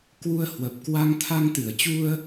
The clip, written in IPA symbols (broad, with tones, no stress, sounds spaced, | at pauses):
k w u˧ ə̯ h w ə˨˩ p̚ k w a˧ ŋ t̪ʰ a˧ ŋ t̪ ɨ˧˩ ə̯ t͡ɕ u˧ ə̯